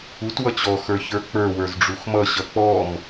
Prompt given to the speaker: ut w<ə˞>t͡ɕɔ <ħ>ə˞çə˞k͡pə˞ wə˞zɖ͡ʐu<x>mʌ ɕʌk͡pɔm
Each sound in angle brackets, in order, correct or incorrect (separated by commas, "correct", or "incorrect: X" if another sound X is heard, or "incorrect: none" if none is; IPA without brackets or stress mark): incorrect: ʌ, incorrect: x, correct